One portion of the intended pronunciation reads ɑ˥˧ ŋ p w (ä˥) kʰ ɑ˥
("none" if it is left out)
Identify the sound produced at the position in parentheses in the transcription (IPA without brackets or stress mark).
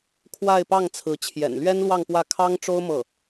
ä˥˩